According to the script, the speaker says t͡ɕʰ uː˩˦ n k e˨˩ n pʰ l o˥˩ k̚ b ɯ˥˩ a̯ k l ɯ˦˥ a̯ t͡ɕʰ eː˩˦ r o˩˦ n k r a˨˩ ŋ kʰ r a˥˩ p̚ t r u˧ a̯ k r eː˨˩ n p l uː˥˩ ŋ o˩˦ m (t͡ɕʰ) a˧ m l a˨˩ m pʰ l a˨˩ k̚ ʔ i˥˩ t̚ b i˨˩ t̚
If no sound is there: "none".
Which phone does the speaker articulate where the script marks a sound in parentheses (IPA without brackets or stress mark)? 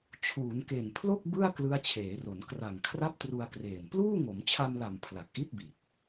t͡ɕʰ